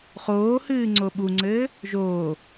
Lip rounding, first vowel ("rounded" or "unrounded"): rounded